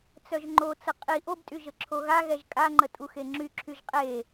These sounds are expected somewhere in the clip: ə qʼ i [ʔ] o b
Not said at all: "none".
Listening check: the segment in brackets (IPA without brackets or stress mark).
ʔ